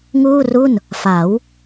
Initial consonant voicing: voiced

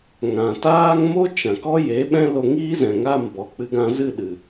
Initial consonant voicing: voiced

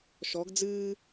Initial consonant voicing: voiceless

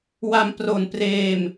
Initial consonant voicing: voiced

